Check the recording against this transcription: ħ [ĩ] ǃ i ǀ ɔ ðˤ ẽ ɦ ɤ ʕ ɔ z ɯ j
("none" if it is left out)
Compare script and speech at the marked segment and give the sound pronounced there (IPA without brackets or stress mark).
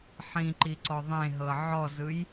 ĩ